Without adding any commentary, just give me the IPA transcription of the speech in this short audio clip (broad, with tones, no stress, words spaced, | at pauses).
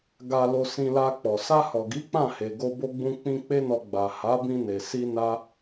ɡa˨ lo˧sĩ˧la˧k͡pɔ˨ sa˧hɔ˨ɡi˨˦ k͡pã˦˨he˨ɡo˧ bo˧ɡ͡bũ˧k͡pĩ˧ k͡pe˦nɔ˧ ɡ͡ba˨ ha˨˦bĩ˧ne˨ si˧ na˦